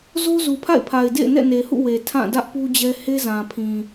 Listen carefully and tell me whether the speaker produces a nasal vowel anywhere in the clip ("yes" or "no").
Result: yes